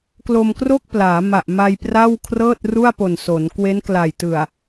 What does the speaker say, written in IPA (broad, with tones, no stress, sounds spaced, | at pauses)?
k l o˧ m k r o˥˩ k̚ p l aː˩˦ m a˨˩ ʔ m a˧ j p r a˥˩ w kʰ r ɤː˥˩ t̚ r u˥˩ a̯ p o˨˩ n s o˩˦ n k w e˦˥ n k l a˨˩ j t ɯ˨˩ a̯